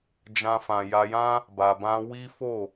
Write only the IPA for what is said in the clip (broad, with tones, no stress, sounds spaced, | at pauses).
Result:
d͡ʒ ã˧ f ã˨ j a˧ j ã˦ | b a˨ b ã˧ w i˦ f o˦˨